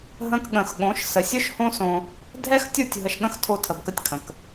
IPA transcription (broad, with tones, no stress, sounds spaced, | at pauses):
ɦ ə̃˧ k ɠ ə̃˨ x ɠ õ˨˦ ʃ s ə˨ sʲ ɵ˦ ʃ h õ˦ s õ˧ | dʱ ɛ˦ x tʲ u˦˨ tʲ ɦ ə˧ ʃ ɠ ə̃˦ x tʰ o˧ tʰ ə˨ b k ə˧ tʲ kʰ ə̃˨ k